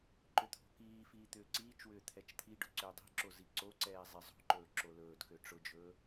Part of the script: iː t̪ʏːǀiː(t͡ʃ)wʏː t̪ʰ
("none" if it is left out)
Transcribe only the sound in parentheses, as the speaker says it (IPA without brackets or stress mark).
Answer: t͡ʃ